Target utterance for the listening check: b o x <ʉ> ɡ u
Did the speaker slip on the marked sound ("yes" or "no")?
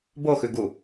no